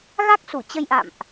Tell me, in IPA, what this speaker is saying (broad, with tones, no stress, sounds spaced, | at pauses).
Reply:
ɣ a˦˥ k̚ s u˧˩ t͡ɕ ə˧ j ʔ a̰˧˨ m ʔ